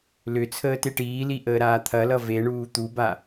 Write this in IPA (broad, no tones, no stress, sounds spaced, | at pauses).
l ʏ t͡sʰ əː t e ʈ iː l i ʔ əː ɾ aː t̪ʰ ɐ l ʌ v e ɳ uː t̪ u b a